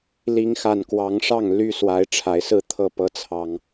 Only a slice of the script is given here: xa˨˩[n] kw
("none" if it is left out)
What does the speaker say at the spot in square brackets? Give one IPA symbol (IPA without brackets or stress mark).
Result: n